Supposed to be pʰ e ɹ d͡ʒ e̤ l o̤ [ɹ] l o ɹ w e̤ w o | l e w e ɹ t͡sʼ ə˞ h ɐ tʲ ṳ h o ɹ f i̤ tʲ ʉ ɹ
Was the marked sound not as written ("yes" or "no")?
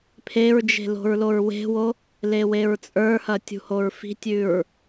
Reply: no